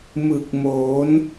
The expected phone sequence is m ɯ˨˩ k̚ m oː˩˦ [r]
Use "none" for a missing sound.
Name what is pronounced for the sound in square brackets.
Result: n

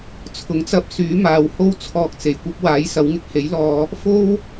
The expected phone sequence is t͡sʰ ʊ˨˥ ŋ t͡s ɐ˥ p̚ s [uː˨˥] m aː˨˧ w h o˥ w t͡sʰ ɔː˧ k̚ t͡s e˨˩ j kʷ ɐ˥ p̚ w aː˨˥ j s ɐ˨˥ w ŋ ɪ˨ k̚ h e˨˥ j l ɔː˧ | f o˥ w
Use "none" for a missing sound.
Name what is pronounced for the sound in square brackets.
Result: yː˨˥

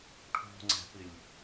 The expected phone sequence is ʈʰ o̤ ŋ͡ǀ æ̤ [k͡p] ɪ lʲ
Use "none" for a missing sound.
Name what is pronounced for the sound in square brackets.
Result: p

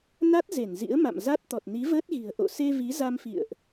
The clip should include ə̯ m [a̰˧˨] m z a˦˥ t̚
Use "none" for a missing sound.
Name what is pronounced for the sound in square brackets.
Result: a̰˧˨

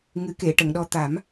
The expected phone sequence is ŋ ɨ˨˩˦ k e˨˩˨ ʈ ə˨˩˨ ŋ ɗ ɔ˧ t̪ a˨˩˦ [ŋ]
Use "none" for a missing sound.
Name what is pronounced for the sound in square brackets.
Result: m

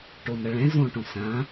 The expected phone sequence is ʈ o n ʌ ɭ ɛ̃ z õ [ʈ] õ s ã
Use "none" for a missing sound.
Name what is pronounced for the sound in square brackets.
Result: ʈ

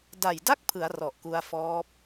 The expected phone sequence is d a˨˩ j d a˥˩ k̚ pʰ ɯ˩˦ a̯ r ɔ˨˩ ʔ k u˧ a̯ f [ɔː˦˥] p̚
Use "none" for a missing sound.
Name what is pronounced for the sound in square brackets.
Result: ɔː˦˥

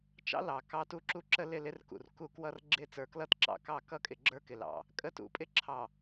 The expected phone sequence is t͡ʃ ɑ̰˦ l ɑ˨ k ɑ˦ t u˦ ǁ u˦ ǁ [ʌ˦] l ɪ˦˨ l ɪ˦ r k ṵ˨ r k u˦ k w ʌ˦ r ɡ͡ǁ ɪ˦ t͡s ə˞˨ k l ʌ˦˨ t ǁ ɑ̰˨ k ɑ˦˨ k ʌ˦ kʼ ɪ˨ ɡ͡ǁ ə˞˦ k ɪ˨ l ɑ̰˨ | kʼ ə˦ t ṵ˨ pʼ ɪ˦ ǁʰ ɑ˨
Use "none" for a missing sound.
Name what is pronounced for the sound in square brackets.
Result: ə˦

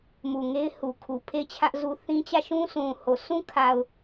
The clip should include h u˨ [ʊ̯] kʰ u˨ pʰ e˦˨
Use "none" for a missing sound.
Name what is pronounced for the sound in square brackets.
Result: none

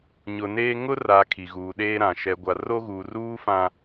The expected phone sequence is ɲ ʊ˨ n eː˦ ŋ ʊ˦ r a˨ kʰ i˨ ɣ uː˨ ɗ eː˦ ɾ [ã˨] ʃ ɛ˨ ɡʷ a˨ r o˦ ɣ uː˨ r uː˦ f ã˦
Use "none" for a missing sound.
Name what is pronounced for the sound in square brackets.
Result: ã˨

